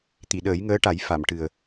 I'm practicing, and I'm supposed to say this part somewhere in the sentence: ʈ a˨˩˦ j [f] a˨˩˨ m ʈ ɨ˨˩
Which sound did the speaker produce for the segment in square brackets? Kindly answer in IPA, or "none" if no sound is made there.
f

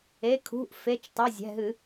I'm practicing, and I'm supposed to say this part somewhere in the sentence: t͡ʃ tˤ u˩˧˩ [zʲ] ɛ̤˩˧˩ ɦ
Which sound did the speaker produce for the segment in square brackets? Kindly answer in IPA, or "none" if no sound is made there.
zʲ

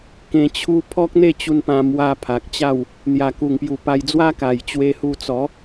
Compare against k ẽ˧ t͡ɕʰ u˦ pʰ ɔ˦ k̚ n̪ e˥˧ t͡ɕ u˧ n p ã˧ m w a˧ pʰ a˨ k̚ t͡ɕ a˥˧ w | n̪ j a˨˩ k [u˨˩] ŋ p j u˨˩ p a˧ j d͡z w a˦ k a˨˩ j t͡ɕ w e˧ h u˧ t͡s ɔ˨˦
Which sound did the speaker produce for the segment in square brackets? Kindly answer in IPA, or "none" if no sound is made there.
u˨˩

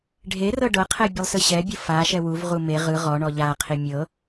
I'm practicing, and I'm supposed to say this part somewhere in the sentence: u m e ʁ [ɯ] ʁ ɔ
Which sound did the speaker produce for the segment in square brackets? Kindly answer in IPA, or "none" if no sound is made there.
ɯ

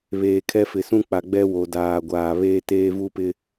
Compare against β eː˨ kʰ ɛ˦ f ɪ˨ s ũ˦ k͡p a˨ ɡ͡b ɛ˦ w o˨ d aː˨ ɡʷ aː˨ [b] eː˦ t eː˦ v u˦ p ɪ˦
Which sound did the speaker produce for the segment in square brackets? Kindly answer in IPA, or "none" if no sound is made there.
β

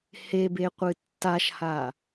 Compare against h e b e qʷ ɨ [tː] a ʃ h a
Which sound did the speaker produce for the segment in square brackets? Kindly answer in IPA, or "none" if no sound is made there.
tː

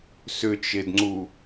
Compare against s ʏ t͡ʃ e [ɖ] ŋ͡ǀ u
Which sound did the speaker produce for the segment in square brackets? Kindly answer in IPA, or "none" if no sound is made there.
d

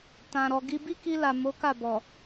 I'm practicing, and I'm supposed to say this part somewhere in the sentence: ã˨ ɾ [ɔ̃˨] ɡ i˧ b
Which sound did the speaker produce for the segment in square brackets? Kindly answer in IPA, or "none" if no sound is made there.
ɔ˨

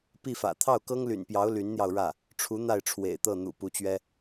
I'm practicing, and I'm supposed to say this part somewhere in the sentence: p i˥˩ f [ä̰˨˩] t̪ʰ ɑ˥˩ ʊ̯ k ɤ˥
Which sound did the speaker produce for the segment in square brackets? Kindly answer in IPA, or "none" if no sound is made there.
ä̰˨˩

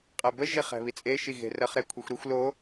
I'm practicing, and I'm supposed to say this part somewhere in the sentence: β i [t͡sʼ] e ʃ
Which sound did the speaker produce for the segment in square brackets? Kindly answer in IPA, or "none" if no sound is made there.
t͡sʼ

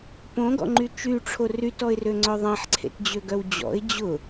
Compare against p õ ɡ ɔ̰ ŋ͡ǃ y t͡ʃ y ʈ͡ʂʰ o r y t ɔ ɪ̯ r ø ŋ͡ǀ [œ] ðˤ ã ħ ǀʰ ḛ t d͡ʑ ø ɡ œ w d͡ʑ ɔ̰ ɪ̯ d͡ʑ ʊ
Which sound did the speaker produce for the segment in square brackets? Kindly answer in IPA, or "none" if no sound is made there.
œ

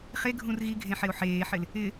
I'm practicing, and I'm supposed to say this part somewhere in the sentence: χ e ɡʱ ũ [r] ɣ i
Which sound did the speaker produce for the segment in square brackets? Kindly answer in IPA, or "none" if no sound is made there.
r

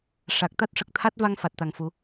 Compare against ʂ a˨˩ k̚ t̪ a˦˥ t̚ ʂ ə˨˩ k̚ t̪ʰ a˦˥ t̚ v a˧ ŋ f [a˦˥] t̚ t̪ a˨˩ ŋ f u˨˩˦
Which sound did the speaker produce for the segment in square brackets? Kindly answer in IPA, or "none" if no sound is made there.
a˨˩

